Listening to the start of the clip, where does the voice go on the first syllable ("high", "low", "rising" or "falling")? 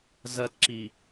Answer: high